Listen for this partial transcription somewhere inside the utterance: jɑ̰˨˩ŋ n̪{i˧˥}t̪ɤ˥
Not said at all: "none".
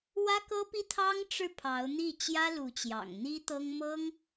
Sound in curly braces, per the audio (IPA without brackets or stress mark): i˥